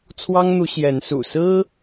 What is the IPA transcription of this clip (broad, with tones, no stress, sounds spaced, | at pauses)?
t͡sʰ w ɑ˦ ŋ n̪ u˨˦ ɕ j ɛ˨˦ n s ṵ˨˩ s ɹ̩˦